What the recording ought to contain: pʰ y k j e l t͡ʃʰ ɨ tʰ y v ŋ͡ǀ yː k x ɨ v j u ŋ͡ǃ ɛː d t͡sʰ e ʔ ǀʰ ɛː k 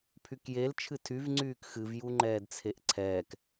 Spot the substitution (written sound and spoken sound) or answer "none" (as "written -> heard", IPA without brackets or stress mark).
none